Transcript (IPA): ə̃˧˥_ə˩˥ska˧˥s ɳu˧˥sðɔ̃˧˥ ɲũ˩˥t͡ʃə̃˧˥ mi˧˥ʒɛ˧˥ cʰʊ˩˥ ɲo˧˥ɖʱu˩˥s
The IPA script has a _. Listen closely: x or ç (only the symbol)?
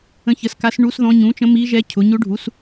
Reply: ç